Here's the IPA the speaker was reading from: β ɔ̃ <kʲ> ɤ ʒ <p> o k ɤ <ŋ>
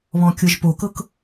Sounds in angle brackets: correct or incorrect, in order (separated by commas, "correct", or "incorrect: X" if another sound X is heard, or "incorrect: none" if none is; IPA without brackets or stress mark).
correct, correct, incorrect: k